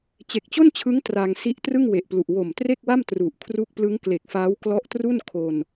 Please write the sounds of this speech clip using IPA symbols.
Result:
t͡ɕe˨˩k̚t͡ɕo˥˩nt͡ɕʰɯ˦˥ŋ tra˧ŋ si˦˥ʔtrɯ˥˩ŋwe˨˩ʔplu˨˩ʔ wo˨˩m tre˥˩k̚wa˥˩m tru˨˩ʔkʰru˥˩k̚ plɯ˦˥ŋkle˨˩k̚faː˦˥w klɔ˦˥ʔtru˥˩nkʰo˧n

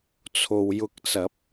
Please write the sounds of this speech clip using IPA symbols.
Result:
t͡sʰo˨wjʊ˧k̚t͡sɐ˨˥p̚

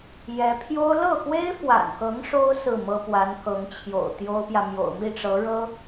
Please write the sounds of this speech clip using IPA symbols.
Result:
jɛ˧˥pʰjo˥ʊ̯ lɤ˥˩xwe˥ɪ̯fwa̰˨˩nkɤ˧˥ŋ ʂo˥ʊ̯ sɹ̩˥˩mɤ˥pwa˧˥nkɤ˧˥ŋ t͡ɕʰjo̰˨˩ʊ̯t̪jo˥ʊ̯pjä˨ mjo̰˨˩ʊ̯mi˥˩ʈ͡ʂɤ˧˥ ɻɤ˥

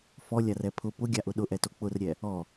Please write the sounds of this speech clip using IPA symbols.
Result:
fɔlʲarɛ pʰʊ pʊɡʲaʔʊ ɗʊʔɛto k͡pʊrɾʲɛ | ɔ

